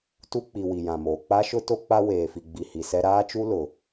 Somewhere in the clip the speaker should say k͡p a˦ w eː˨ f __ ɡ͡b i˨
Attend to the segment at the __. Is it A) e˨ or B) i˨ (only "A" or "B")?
B